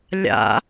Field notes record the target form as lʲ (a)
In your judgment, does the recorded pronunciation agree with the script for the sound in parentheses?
no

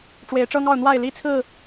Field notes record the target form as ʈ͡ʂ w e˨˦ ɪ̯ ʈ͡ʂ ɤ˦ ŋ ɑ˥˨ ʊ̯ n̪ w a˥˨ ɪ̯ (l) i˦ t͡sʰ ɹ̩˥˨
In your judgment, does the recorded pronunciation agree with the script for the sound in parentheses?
yes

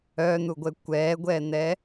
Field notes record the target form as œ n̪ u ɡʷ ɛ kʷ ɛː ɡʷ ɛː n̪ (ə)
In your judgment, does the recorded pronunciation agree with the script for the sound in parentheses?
no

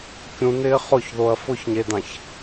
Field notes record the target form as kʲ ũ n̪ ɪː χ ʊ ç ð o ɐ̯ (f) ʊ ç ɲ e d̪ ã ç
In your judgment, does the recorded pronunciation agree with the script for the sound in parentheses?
yes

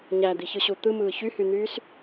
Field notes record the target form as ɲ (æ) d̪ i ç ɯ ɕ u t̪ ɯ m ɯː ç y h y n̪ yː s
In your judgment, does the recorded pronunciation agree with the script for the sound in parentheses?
yes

